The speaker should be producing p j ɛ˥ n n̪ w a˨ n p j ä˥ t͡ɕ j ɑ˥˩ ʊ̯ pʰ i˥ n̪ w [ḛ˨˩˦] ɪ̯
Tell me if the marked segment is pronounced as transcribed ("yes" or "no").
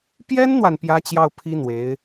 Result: no